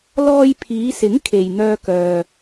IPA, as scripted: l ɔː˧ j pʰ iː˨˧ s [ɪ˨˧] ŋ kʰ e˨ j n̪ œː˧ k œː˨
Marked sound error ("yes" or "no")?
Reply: yes